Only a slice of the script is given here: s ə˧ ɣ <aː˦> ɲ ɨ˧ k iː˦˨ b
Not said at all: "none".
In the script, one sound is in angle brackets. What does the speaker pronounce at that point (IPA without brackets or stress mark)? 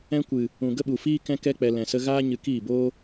aː˦